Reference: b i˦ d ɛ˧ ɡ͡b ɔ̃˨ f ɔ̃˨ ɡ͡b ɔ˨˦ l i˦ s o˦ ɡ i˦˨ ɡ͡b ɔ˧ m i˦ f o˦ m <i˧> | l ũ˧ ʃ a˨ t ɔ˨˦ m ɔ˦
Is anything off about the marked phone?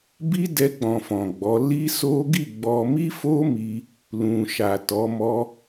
no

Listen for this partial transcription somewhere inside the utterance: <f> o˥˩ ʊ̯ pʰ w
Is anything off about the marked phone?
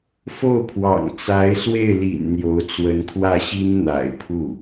no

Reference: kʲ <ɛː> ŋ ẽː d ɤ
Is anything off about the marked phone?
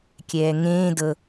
no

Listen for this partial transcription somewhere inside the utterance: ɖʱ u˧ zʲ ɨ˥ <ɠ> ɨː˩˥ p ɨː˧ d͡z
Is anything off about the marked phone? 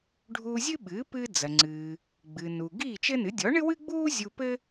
yes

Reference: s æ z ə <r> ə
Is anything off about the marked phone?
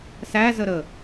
yes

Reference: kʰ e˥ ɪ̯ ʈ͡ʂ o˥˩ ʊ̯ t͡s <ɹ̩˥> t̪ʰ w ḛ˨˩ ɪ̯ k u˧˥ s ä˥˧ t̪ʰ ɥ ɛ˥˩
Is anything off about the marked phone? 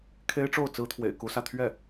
no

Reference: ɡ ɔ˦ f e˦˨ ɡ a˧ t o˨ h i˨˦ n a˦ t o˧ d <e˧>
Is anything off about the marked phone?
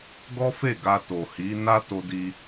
yes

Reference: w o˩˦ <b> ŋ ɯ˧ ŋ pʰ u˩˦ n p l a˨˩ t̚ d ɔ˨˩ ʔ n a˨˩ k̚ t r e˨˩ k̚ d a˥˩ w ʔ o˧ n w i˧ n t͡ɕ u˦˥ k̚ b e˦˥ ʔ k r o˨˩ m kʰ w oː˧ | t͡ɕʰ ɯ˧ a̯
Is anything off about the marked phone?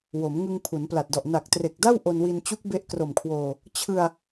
yes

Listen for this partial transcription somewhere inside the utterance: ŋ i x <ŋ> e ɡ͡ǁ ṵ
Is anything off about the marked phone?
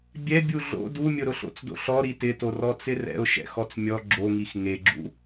no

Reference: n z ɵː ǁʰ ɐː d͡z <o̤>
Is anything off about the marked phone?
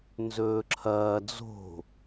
no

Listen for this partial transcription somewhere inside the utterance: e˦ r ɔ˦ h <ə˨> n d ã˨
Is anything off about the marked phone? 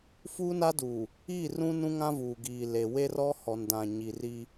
yes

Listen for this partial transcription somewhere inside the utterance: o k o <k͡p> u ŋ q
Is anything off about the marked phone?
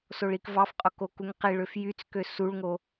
yes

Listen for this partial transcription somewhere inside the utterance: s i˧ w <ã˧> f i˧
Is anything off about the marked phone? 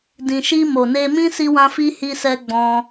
no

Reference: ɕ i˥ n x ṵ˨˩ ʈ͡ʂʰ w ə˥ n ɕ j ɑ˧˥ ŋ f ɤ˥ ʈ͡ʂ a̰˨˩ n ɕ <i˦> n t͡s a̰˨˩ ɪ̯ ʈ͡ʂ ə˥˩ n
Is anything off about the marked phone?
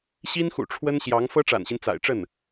no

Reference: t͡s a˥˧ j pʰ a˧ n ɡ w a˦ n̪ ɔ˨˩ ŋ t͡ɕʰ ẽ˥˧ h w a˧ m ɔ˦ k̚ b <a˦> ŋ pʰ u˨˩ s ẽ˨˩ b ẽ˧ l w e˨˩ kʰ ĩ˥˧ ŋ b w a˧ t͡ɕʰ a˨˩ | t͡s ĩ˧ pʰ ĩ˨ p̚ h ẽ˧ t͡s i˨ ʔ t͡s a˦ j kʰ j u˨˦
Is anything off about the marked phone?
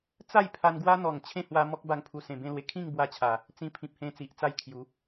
yes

